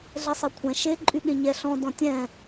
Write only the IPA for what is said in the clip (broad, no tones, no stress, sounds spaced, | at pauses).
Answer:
ɮ ɛ sˤ ɛ kʷʰ ɛ̃ ʃ e ǃʼ y ɠ ẽ ɲ ɛ ɬ ɔ̃ d ɔ̃ tʲ ɛ̃